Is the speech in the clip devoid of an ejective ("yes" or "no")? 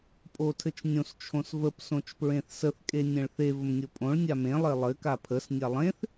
no